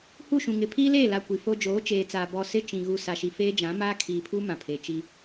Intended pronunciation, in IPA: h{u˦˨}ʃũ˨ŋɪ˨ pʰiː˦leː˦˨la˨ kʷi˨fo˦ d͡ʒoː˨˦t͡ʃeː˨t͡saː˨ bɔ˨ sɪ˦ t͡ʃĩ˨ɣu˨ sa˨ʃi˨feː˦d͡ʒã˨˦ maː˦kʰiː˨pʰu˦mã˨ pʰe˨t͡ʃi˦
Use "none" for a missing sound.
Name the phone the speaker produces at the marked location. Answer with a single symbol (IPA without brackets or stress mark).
u˦˨